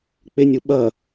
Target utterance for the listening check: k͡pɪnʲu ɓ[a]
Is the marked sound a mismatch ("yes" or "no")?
yes